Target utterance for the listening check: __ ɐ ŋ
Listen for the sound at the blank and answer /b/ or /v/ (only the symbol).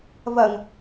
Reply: v